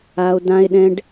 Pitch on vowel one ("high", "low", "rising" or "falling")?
high